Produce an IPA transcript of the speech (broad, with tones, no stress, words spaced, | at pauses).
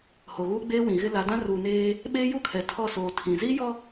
ho˨ɣuː˦ɡ͡beː˦ wĩ˨ɣɪ˦ la˨˦dã˦ ruː˨neː˦ | ɓeː˦ju˦kʰɛ˨tʰɔ˦˨ soː˨ tʰĩ˨ ziː˦jɔ˦